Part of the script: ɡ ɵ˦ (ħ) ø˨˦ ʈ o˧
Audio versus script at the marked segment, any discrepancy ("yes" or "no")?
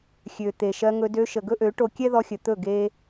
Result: yes